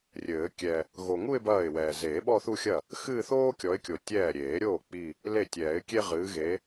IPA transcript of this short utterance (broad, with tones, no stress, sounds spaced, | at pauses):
rʲ ɘː˨˩˦ kʲ ɛ˨ | ɣ o˨ ŋ u˥˧ ɪ̯ b ɐː˥˩ ɪ̯ w ɛː˨ z eː˨˩˦ ɓ ɔ˥˧ θ u˥˧ xʲ ɐ˥˩ | x ɨː˥˧ θ oː˥ kʲ ɔ˨˦ ɪ̯ kʲ o˨ tʲ ɛː˥˩ ɾʲ eː˨˩˦ ɾʲ oː˥˩ k͡p i˥˧ | l e˥˩ tʲ ɛː˨˩˦ ɪ̯ kʲ e˥ ʁ ɨː˨˦ ɣ e˨˦